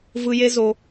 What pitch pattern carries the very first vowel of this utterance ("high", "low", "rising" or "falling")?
low